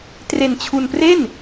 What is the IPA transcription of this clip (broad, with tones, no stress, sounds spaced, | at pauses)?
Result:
t r e˧ n t͡ɕʰ u˧ n p r e˥˩ n